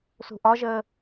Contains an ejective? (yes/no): no